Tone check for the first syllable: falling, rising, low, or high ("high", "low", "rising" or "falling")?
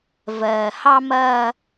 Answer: low